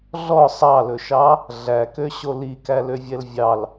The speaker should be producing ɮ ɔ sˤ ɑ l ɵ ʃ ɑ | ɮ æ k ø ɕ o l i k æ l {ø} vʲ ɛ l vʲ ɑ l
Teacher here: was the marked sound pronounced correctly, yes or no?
yes